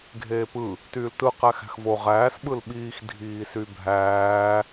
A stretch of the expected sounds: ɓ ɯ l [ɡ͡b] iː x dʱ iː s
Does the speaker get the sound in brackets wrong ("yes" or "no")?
yes